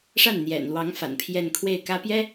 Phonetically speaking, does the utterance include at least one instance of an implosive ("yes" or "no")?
no